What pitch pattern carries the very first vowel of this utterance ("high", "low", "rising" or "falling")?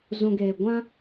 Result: low